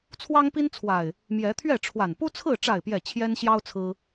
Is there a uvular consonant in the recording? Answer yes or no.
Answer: no